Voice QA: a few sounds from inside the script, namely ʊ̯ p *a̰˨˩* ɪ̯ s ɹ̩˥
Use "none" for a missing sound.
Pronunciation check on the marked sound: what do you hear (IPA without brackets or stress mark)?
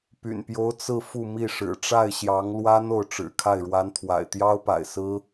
a̰˨˩